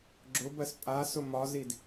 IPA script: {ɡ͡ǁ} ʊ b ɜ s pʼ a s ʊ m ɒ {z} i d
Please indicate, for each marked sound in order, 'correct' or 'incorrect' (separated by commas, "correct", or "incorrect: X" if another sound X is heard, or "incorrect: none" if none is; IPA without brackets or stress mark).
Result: correct, correct